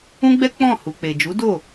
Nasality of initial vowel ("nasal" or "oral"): nasal